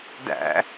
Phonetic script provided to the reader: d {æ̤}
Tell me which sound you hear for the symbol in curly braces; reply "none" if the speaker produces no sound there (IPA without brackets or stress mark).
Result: æ̰